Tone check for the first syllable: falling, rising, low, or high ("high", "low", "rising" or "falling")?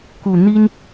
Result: low